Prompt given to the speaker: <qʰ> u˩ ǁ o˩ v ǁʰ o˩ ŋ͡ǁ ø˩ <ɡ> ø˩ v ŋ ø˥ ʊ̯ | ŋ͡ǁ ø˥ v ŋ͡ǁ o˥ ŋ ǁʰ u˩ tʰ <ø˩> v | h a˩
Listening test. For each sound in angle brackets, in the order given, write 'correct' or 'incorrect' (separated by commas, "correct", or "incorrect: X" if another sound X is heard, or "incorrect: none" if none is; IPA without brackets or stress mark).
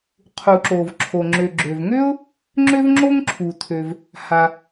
correct, incorrect: ɡ͡ǁ, correct